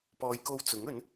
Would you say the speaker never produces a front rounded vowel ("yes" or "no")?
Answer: yes